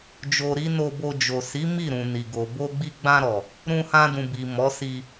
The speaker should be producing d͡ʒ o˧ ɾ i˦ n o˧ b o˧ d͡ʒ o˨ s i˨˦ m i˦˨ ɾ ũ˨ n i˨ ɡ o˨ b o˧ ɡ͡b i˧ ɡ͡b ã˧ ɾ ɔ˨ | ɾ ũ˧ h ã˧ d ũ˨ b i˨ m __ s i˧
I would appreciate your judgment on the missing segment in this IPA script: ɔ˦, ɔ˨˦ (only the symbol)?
ɔ˨˦